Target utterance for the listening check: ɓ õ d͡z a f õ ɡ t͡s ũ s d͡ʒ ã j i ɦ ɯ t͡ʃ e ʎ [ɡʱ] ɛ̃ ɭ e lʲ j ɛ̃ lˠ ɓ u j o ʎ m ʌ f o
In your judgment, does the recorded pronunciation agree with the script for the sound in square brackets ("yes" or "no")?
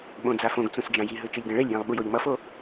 no